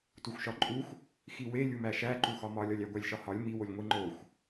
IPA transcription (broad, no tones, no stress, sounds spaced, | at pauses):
t u xʷ ʃ ɒ ǃʼ u xʷ | x i w e lʲ u m æ ʃ æ ǃ u x ɒ m ɒ lʲ ɒ lʲ æ ɡʷ æ lʲ ʃ ɒ h ɒ lʲ m i w o lʲ ŋʷ i ŋ͡ǃ o xʷ